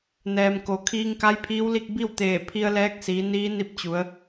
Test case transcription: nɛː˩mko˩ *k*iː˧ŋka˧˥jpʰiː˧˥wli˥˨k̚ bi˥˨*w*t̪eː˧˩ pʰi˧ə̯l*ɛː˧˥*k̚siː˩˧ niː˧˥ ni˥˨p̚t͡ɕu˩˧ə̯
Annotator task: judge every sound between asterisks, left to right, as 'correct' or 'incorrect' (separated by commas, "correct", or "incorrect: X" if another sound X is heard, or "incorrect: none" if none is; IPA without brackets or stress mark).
incorrect: kʰ, correct, correct